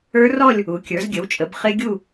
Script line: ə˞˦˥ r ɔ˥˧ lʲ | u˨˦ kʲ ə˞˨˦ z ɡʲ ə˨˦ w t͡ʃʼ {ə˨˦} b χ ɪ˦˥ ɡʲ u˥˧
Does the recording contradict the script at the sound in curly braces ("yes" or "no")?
no